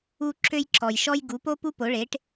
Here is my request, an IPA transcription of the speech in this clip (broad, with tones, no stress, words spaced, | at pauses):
u˥ ǁø˥jǁɔ˨jʃɔ˥j ɡu˩˥po˥ pu˥ po˩˥ɭe˩˥ʈ